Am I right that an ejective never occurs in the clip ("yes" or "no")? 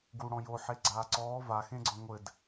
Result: yes